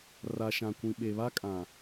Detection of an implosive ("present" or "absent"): present